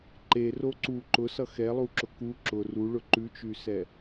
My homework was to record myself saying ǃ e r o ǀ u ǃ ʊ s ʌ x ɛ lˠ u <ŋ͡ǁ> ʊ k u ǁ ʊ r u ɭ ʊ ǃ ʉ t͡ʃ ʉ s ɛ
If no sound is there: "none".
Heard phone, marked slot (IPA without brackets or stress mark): ǁ